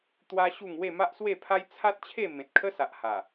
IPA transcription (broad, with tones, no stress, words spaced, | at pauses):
t̪wa˦ɕu˥˧ŋ we˥˧ma˦ʔswe˥˧pʰa˦j t͡sʰa˦t̚t͡ɕʰe˥˧ mẽ˨t̚kʰə˦sa˨ʔ ha˨˩